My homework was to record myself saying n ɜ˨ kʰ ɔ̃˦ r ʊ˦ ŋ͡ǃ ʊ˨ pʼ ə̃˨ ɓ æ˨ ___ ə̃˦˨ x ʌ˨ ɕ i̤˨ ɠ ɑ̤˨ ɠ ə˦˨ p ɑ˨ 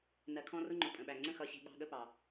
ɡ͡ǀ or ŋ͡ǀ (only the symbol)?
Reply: ŋ͡ǀ